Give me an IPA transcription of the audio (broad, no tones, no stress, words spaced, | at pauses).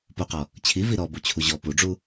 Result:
poqɔ | t͡ɕʰi viɾɔ but͡ɕʰuʑɔ puɖ͡ʐu